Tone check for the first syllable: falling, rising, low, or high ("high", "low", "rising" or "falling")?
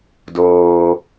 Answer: low